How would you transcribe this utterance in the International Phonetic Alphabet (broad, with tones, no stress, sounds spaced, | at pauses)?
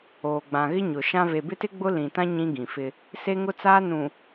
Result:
oː˨ ɡ͡b ã˨ ɣ ɪ˦ ɲ ʊ˨ ʃ ã˦ v e˨ b ɪ˦ t ɪ˦ ɡ͡b ʊ˦ l ĩ˨ t ã˦ ɲ ĩ˦ ɡ ĩ˨ f ɪ˦ | s e˦ ŋ ʊ˦ t͡s aː˦ n ũ˨